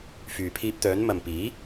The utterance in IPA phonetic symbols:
f yː˨ pʰ iː˧ p̚ t̪ œː˨˥ n m ɐ˨ m p iː˨˥

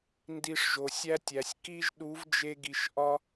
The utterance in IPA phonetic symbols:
n d i˧ ʂ ʒ o˨ sʲ æ˦ tʲ æ˨ sʲ k i˦ ʒ ɗ u˨˦ v d͡ʒ e˧ ɡ i˨ ʃ ʔ ɒ˦

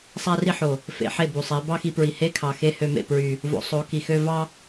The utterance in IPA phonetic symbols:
sˤ æ˦ r i˦ ħ o˨ | f ḛ˨˦ ħ e˦˨ b u˨ sˤ e˨˦ b ɑ˦ x i˧ p ɹ i˨ h e˦ kʰ ɑ˨ x e˦ h ø˧ m ḛ˨ p ɹ y˨ | v o̰˧ sˤ o˨˦ k i˨ x ø˦ v ɑ˦

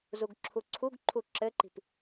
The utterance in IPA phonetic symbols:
z u ɡ ǁʰ u ǀʰ u ɡ ǃʰ u ǁ ɘ ǃ i̤ p

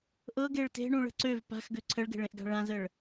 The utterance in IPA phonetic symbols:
ʔ ɤ ɡ e ɭ t e̤ ɳ ũ ɭ ə̤ ǀ ø v p a̤ x ɡ ø ǀʰ ə ɭ ɡ e̤ ɭ ẽ ʔ ɡ a̤ ɭ ã z ə ɭ

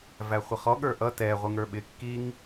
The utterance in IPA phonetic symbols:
v æ χʷ ə χ ɔ ɠ ə˞ ʔ ʌ t ɛ ʁʷ ɪ ŋ ə˞ ɓ ɪ kː i ŋ

